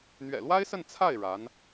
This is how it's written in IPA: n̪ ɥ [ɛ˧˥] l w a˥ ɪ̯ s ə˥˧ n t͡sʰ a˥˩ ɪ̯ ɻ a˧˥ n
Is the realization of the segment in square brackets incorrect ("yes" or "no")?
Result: yes